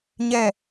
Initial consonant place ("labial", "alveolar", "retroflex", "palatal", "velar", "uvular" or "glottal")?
palatal